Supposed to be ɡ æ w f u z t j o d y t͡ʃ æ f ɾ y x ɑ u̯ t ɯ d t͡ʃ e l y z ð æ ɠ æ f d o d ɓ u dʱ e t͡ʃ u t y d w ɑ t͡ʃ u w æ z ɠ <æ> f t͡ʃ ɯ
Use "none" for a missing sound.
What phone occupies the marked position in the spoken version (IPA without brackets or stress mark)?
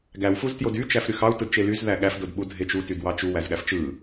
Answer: æ